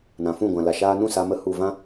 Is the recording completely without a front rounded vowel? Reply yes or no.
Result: yes